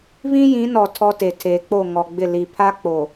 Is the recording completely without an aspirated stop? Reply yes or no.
no